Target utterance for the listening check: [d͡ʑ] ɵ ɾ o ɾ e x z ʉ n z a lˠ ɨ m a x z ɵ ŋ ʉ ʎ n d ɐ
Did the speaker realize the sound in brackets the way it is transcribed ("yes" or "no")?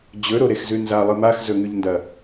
yes